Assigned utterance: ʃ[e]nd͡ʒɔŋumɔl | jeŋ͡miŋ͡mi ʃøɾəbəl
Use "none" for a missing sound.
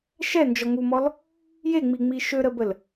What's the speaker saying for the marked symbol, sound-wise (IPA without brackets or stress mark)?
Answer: ɛ